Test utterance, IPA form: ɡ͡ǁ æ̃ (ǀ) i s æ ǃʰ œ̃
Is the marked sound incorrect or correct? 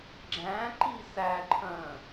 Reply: incorrect